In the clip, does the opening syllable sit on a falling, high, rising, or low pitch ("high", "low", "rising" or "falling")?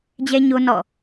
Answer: high